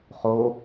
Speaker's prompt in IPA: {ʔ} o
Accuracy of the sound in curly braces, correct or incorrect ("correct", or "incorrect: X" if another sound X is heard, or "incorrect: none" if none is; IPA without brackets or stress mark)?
incorrect: χ